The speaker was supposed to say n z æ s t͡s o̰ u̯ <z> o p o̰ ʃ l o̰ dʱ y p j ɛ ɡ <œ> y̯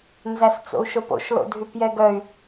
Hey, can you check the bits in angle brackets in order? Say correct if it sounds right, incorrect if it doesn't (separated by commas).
incorrect, correct